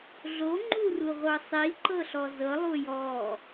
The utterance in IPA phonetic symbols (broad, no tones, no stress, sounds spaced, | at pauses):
ɮ o ŋ͡ǃ u r u ʁʷ ɤ sˤ i ǃ ɤ ɬ ɔ z ɤ lˠ u j ɔ